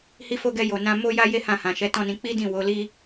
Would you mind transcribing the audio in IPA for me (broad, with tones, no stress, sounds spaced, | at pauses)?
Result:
h i˧ f o˧ ɡ ɛ˧ j o˨ n ã˧ m o˦ j a˦ j e˦ h ã˦˨ h ã˨ ʃ ɛ˨˦ t ɔ̃˦˨ n ĩ˧ k͡p i˦ d ĩ˦˨ w o˨˦ l i˦